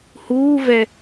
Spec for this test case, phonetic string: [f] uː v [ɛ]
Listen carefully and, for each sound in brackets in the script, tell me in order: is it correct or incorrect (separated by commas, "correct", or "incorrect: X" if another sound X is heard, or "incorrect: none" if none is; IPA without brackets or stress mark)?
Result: incorrect: h, correct